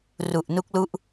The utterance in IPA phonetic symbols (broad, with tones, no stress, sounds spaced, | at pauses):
r u˨˩ ʔ n u˦˥ k̚ l u˦˥ ʔ